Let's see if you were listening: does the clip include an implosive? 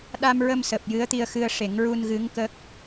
yes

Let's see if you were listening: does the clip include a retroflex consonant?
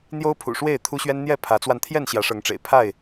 yes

